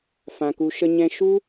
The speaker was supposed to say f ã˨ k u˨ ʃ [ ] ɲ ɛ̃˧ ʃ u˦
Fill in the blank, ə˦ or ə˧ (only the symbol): ə˧